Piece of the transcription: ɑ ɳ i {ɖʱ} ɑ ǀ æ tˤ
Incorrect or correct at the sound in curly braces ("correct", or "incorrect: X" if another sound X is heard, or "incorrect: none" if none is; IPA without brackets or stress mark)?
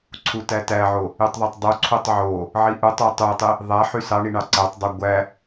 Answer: incorrect: ɳ